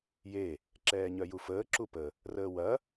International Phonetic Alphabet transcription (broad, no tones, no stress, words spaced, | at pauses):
je | ǁɛːɲœjufəː ǁupə | rəːwɐ